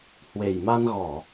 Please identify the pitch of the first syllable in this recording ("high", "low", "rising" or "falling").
low